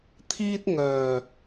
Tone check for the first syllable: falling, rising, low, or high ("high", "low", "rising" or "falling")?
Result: high